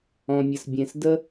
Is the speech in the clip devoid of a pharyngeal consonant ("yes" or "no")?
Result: yes